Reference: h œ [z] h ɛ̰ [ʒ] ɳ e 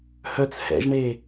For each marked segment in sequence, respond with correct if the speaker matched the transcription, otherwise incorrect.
incorrect, correct

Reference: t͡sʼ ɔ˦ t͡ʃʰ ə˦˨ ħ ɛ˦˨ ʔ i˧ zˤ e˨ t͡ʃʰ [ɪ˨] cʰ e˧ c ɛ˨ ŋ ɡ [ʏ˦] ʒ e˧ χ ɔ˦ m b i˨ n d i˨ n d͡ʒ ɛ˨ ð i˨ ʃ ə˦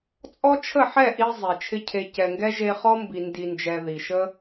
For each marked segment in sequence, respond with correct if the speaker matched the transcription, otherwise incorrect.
incorrect, incorrect

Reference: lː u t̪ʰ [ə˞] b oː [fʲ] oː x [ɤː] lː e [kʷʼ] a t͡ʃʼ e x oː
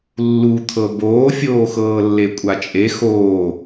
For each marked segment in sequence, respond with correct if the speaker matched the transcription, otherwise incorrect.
incorrect, correct, correct, correct

